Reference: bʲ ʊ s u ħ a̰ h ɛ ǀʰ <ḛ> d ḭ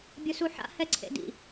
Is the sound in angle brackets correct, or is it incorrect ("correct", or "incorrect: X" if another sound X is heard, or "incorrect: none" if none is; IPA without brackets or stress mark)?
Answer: correct